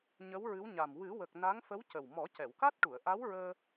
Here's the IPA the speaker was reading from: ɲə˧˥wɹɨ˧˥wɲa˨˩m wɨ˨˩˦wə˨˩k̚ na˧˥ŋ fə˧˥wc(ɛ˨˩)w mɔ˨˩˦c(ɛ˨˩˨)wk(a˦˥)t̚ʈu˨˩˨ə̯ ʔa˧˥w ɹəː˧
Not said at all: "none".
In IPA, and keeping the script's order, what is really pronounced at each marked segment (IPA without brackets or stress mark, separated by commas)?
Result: ə˨˩, ɛ˨˩˨, a˦˥